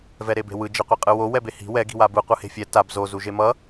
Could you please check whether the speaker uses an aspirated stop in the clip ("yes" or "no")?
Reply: no